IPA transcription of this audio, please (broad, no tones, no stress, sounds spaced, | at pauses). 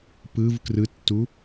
p ɯ v k r ɯ tː u